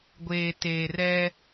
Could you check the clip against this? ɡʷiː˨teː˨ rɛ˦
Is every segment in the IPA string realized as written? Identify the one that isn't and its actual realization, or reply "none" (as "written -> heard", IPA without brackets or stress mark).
iː˨ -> eː˨